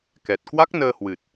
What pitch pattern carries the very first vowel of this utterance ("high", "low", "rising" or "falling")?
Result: low